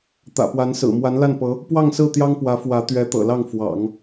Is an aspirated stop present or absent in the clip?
absent